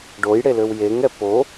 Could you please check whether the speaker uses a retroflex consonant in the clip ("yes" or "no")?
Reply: yes